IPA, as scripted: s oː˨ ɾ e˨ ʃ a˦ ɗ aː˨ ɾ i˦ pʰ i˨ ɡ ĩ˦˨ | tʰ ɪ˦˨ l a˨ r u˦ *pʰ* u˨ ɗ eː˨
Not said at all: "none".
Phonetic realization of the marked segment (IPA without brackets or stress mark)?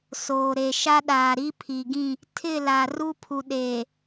pʰ